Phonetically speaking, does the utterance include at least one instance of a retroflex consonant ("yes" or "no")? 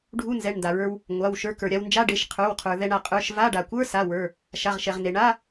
yes